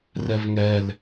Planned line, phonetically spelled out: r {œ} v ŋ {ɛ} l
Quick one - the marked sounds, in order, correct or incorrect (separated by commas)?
incorrect, correct